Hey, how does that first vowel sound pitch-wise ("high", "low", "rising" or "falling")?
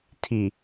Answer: low